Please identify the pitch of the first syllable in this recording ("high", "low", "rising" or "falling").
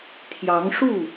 rising